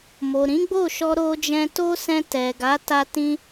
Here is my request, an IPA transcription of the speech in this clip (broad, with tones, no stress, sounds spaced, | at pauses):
m o˨ ɾ ĩ˨˦ ɡ͡b o˦˨ ʃ ɔ˧ ɾ o˧ d͡ʒ ɛ̃˧ t o˦ s ɛ̃˧ t ɛ˨ ɡ a˨˦ t a˦ t ĩ˦